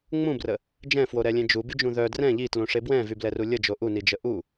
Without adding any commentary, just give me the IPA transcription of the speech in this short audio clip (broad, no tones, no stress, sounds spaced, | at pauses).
ŋ͡m ũ b r ə | d͡ʒ ɛ̃ f w o ɾ ɛ lʲ ẽ d͡ʒ u b y d͡ʒ ũ ð œ d r ɛ̃ ʎ i t l ũ ʂ e b w ɛ̃ v y b l ɛ r u lʲ ə d͡ʒ o ʔ u n i d͡ʒ ə ʔ u